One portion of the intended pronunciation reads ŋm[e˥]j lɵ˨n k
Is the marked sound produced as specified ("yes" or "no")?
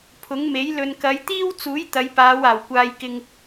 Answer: no